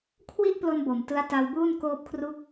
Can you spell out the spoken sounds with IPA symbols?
kʰwi˥˩ʔplo˧n bo˨˩mtɯ˦˥a̯ ta˧wbuː˥˩n koː˦˥p̚kʰru˦˥k̚

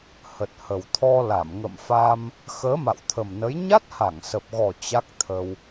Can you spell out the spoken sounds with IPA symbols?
hə˨˩t̚hə˨˩w t̪ʰɔ˧la˧˩m ŋə̰˧˨mfa˧m | xəː˨˦ma̰˧˨wt̪ʰə˨˩mnə˨˦j ɲa˦˥t̚ha˧˩ŋsə˨˩p̚ɣɔ˨˩ t͡ɕa˦˥k̚t̪ʰə˧w

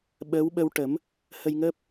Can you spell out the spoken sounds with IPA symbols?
ɓəː˧˥wɓə˧wʈə˨˩˦m | hə˧jŋəː˦˥p̚

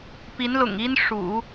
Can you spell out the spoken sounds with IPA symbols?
pi˧˥nlʊ̰˨˩ŋi˥n ʂṵ˨˩˦

